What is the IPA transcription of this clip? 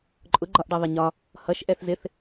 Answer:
ǃʼ ʊ ɡ͡ǃ ɒ ʔ ɖ ʌ ðˤ ɪ ɲ ɒ | h ʌ ʃ ʔ ɛ θ z ɪ θ

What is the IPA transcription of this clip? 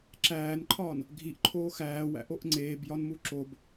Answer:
ǁ æː n ǃʰ ɒː n | ɡʱ i ʔ ǃʰ oː x æː w æ̰ ʔ o ʔ ŋ͡ǀ eː b j ɒ n m u ǁ o b

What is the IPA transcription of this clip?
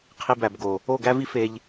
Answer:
qʰ i˧ b æ˨ b ɡ o˨ | o˦˨ ɡ æ˦ v i˦ f e˧ ʎ

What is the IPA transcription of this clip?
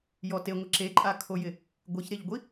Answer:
j ɔ t e ŋʷ ɪ ǁ e ǃʼ a kʰ o j ɪ | ɡʷ e ç ɾ e ʎ ɡʷ i

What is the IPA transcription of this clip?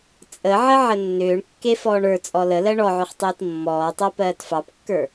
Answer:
t͡sʼ ə ʕ ə ʕ ə nː ʏː ɳ kː e f ɔː ɳ ə˞ t͡sʼ ɔ l ə l ɜ ɳ ɔ ʕ ʏ χ tˤ iː t mː ɔː tˤ ɜ p ɜː t f ɑ p kː ə˞

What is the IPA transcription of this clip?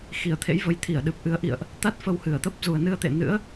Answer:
x i˧˩ ə̯ t̪ʰ ḛ˧˥ j v ə˨˦ j t̪ʰ i˧˩ ə̯ ɗ ɨ˨˩ p̚ ʔ ɨ˨˦ ə̯ ʔ ḭ˧˨ ə̯ ʔ | t̪ a˦˥ t̚ f ə˧ w h ɨ˧˩ ə̯ t̪ ə˦˥ p̚ z u˨˩ ə̯ n ɨ˧ ə̯ t̪ ḛ˧˨ n ɨ̰˧˥ ə̯

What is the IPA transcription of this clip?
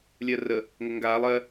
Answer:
lʲ ɜ r ə | ŋ ə ŋ ɡ aː lˠ ɜ

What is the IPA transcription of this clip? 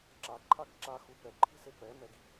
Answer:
ǁ a ǃʰ a ɡ ǁ a x u p ɛ ǃʰ i̤ s e p ɛ m ɛ ɡ i̤

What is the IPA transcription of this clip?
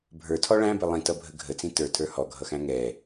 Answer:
bʱ ə˞ tʰ ɔ ɭ æ̃ b ɪ lˠ ĩ t ʌ bʱ ə ɡʱ ə t͡s ĩ t ə˞ tʰ ə˞ h ɔ ɡʱ ʌ x æ̃ ŋ ɛ

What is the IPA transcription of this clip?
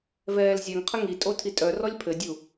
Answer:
v ɛː l zʲ ɛ ŋ qʰ ə ŋ i tʼ o tʰ i tʼ œ r ɔ lʲ pʰ ɘ dʲ u

